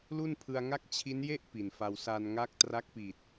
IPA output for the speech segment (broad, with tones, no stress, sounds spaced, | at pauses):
l u˥˩ n pʰ ɯ˧ a̯ ŋ a˥˩ k̚ t͡ɕʰ i˦˥ n j e˥˩ ʔ p i˨˩ n f a˧ w s a˧ n ŋ a˦˥ k̚ t r a˦˥ k̚ p i˨˩ t̚